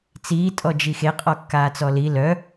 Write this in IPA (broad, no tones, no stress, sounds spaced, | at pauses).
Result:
t͡s iː tʼ ɔ d͡ʒ i x e qʼ ɔ kː aː t͡s ɔ l i l œ